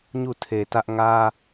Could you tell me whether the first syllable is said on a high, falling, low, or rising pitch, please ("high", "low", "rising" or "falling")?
falling